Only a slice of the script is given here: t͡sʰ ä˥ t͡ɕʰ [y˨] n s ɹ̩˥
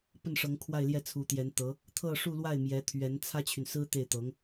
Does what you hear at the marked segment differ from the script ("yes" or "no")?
no